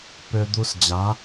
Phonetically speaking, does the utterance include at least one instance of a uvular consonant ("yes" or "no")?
no